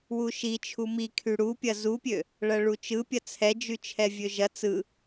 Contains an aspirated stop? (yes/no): yes